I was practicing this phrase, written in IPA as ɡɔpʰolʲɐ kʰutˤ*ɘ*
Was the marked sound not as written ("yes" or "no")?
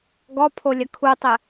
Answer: no